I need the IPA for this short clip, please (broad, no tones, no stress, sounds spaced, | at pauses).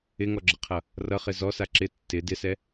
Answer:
ɪ ŋ ɔ ɡ͡ǁ ʌ qʰ ʌ | r ʌ χ ɪ z ɔ s a ǁ ɪ tː ɪ d ɪ s ɛ